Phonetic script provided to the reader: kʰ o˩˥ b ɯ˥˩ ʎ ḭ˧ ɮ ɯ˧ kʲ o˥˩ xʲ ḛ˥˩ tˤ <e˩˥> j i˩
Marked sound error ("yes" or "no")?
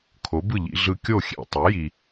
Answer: no